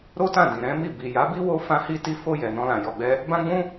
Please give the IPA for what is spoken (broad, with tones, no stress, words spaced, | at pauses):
ɾo˦tã˦˨ dĩ˨ɾɛ̃˨˦mi˦˨ bi˨ja˨˦bi˦ wo˦ fã˧hi˧ ti˧fo˧ jɛ˨nɔ̃˧lã˨ jɔ˨ɡ͡bɛ˧ | bã˦ɡ͡bũ˦